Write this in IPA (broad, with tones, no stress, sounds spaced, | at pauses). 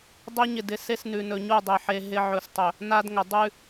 dˤ e˦ ɲ ɪ˨ d ɪ˨ s e˦ s n ʉ˨ n ɵ˨ ɲ u˦˨ dˤ e˨ ħ e˨ ɦ ɪ˦ ʕ ɵ˨ s tˤ ɵ˨ | n a˦ d ŋ ə˨ dˤ ʉ˦